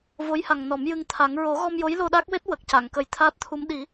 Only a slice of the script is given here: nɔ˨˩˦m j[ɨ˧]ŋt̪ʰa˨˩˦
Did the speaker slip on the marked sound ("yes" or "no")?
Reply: no